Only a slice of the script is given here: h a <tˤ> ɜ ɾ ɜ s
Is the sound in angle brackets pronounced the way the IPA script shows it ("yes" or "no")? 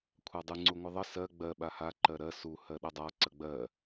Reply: no